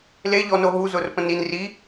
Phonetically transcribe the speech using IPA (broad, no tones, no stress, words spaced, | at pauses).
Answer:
leʎɔno ɦuzʊr pə̃nin ri